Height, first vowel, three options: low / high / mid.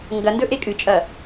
low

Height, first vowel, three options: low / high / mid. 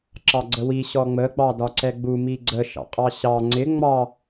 low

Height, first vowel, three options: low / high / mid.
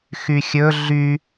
high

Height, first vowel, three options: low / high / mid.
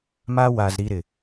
low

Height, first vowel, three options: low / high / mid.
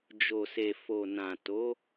mid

